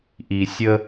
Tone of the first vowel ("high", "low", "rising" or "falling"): low